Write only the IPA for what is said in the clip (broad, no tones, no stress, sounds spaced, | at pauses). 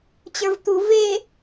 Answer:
t͡ɕ ə˞ v t̪ u v e